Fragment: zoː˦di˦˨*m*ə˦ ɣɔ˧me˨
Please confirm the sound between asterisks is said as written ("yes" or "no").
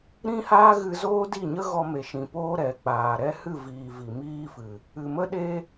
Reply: no